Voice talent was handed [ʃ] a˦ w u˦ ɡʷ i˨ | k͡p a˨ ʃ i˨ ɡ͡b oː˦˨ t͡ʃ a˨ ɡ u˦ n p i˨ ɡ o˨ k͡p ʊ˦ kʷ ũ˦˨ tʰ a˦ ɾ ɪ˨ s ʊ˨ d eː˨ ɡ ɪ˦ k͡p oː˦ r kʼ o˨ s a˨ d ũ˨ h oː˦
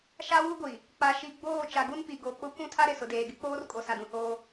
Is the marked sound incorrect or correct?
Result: correct